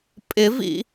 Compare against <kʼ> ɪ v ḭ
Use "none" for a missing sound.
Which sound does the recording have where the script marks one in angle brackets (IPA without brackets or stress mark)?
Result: pʼ